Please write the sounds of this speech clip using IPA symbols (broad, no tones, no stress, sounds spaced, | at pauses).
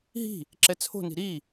ɦ i̤ | ǁ ɛ t͡sʰ o̤ n i̤ ɾ i